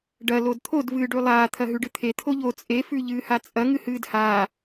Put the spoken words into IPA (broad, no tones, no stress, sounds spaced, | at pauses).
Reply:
ɖ ɐ l o d t̪ʰ o d v ɨː ɖ ʉ lˠ aː t̪ʰ ɐ ɦ ʉ ɖ ɨ t̪ʰ e t̪ʰ o ʎ o t͡sʼ e f ʉ ʎ ɨː h a t͡sʼ ɐ ŋ ɨ h ɨː d h aː